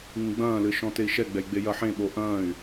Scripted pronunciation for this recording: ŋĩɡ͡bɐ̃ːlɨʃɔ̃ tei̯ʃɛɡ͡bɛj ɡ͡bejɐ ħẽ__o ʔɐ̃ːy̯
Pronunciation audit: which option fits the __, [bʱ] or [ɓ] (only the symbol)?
ɓ